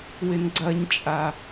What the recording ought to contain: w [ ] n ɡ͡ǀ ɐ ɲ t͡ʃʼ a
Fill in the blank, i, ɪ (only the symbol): ɪ